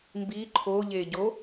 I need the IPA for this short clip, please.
m b i ǃʰ o ʎ e ɟ o

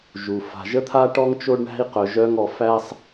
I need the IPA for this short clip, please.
ʒ u˩ f a̤˩ ʒ ə˥ t̪ʰ a˥ ʈ ɔ˥ ŋ t͡ʃ o˥ ɖ ɳ æ̤˥ i̯ q œ˩ ʒ œ˧ ŋ ɔ˩ f æ˧ sˤ

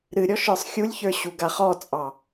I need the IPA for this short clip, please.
ɾ ɨ ɾʲ ɔ ʃ ə˞ sˤ xʲ u lʲ ç ə˞ ɕ u ɡ a χ ɔ t͡sʼ ɑ

